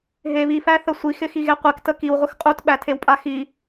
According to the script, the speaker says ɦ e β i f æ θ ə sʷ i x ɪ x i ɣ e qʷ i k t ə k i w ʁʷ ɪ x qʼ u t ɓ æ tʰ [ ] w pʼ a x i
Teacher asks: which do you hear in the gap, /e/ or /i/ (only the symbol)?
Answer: e